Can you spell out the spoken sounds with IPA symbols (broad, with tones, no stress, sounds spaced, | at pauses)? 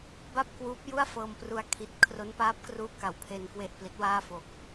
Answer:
b a˥˩ p̚ k w uː˦˥ p̚ j u˥˩ a̯ f ɤː˧ m p r u˧ a̯ kʰ i˦˥ t̚ kʰ r o˦˥ n p aː˦˥ p̚ k r uː˦˥ k a˩˦ w pʰ e˧ n k w e˨˩ ʔ p l i˦˥ t̚ w aː˥˩ f o˨˩ k̚